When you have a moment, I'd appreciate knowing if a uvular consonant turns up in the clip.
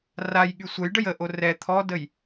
no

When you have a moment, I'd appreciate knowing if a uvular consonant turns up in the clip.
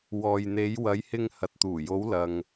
no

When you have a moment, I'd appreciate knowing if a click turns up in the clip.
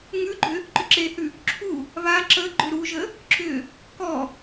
yes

